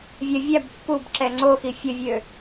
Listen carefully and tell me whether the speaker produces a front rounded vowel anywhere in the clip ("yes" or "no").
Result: yes